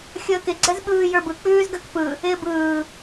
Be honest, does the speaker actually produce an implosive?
yes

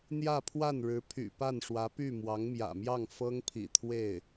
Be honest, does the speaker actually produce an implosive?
no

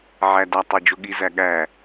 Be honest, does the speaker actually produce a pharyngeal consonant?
yes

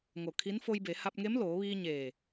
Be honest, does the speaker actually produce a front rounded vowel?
no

